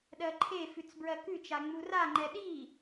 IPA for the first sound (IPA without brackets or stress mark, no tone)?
ɗ